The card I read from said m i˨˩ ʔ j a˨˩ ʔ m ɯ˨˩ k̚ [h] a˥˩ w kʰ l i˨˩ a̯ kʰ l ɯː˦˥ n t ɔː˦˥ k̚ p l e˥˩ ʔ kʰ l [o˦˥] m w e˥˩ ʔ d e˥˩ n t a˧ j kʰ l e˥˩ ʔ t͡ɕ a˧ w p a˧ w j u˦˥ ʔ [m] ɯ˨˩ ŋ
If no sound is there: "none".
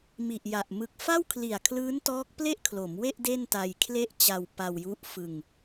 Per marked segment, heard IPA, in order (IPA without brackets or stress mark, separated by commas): f, o˩˦, f